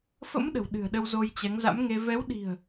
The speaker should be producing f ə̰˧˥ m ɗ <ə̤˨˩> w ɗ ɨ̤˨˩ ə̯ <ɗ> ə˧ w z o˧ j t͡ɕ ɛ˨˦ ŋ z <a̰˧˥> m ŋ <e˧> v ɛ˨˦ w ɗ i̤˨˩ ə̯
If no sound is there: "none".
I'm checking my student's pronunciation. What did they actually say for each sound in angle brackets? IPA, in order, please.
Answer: ə̤˨˩, ɗ, a̰˧˥, e˧

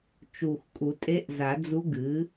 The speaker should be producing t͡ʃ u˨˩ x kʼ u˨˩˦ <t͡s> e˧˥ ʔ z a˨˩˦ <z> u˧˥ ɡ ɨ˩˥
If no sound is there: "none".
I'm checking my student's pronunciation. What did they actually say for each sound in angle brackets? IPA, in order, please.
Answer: tʼ, d͡z

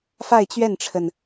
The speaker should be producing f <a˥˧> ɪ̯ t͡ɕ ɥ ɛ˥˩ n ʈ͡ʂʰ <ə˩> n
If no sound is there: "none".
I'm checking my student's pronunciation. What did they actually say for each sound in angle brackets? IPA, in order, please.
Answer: a˥˧, ə˩

